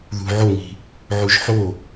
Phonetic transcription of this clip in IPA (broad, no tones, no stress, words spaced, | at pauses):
ðṳ ʕoŋi̤ | ʕuʒħo